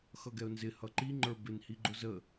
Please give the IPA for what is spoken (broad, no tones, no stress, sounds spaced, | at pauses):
x ʌ ɡ ɛ ʊ̯ n z ɪ h ʌ ǃ i ŋ͡ǃ ə˞ b ɪ n h i ɡ͡ǃ ʊ z ə